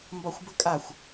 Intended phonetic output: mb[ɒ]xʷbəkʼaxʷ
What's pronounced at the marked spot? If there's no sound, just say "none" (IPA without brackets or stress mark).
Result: ɒ